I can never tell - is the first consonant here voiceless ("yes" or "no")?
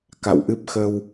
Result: yes